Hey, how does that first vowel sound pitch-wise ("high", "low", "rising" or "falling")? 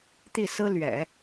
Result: falling